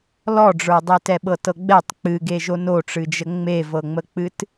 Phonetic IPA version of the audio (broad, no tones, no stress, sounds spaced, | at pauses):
l ɔ ɖ͡ʐ ə˞ dˤ e t ɛ ɓ ɤ t ɤ ɡ͡b ɛ tˤ k͡p ɨ ɡ e ʒ o n o ʈ͡ʂ ɨ d͡ʒ ə ŋ͡m e v ɤ ŋ͡m ə k͡p ɨ t